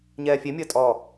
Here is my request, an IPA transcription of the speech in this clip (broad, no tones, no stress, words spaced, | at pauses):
ɲɛːfʲemʲəː tʼɔ